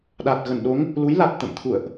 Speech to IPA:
ɗa˨˩t̚ ɣə˧˩nɗo˨˦ŋ | lu˨˦jla˨˩t̚ t̪ə̰˧˨mt̪ʰṵ˧˨ə̯ʔ

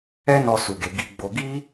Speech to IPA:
ɛ˧nɔ˨ su˨ɡe˨ ɡi˨ɡ͡bo˨ɡi˧

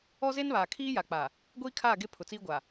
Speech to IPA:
ɔ˦ze˦nβaː˨ kʰiː˦ja˨ k͡pa˨ | ɡʷiː˦kʰaː˦˨ɡe˦ pʰʊ˨t͡siː˦ɡʷa˨

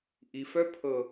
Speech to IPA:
ʔi˨fœ˦˥ pʰɤ˦˨

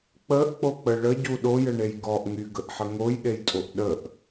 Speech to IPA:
k͡pəʔk͡pok͡pə ɭəɟu ɗojəɳej ɡɔʔŋyɡəʔħə ŋojɗejtʼoʔ ɗəʔ

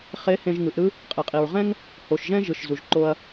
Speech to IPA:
χe˧˥hẽ˧ʒ ŋɯ˩˧ʔɾɯ˥ | qʼe˩qʼi˩ɹʁɛ̃˥ŋ | ho˩ʃʒɛ̃˥ ʒɯ˩ʃzu˩ʒǃo˧ɐ̯

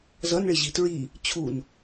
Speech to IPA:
zʌnɭɪʑi tɹi | t͡ɕʰun

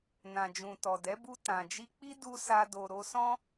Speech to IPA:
nã˨d͡ʒũ˨tɔ˨dɛ˨˦ bu˧ tã˨d͡ʒi˧k͡pi˦ du˦sa˦do˧ ɾo˧sɔ̃˦

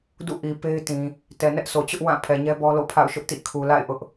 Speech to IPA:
dṵ˦˨ʔi˨ pe˦ɪ̯tĩ˨ | tɛ˨nɛ˦ʔsʰo˨ t͡ɕʊ˦ʔ wã˦˨ pʰɛ˨ɲɛ˦bɔ˦lo̰˦˨ pʰa̰˦˨ʊ̯ʃʊ˦ʔtḭ˦˨ kʰu˨la̰˦˨ɪ̯ ʔʊ˦ʔ

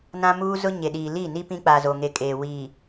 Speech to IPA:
nã˦muː˦zʊ˦ ɲe˨ɗiː˨ li˦˨ni˦ pĩ˦k͡pa˨ zo˨ŋe˨kʼeː˨ wi˨

